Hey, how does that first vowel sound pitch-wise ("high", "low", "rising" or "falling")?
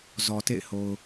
low